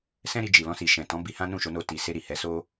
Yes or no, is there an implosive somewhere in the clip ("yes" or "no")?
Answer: no